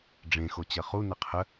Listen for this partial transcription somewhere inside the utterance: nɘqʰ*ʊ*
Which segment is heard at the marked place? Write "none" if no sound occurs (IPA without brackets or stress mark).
ə